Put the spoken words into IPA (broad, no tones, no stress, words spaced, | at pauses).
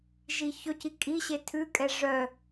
ʒiçɵci kʼiɕe tʰʉkʼɛ ʐœ